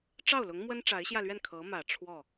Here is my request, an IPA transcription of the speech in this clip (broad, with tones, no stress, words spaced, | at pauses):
ʈ͡ʂɑ˥˩ʊ̯lʊ˧˥ŋ mwə˥nʈ͡ʂa˧˥ɪ̯ɕjä˥˧lɥɛ˥˩n kʰɤ˧˥mä˨˩ ʈ͡ʂʰwɔ˥˩